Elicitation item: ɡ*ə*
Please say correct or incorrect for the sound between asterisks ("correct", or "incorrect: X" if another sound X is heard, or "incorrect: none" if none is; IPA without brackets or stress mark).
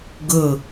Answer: correct